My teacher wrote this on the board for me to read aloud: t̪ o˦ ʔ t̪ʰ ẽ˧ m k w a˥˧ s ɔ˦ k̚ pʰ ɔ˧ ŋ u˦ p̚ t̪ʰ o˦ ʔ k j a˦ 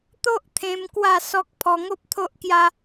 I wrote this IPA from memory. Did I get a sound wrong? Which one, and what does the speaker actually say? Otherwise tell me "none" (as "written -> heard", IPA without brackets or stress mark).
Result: u˦ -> o˦